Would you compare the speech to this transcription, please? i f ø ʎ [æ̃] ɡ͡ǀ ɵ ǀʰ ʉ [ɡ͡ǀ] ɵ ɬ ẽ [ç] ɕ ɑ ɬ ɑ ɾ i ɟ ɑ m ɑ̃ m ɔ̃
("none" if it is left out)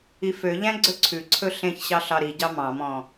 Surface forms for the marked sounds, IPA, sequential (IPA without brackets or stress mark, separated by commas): æ̃, ǀʰ, ç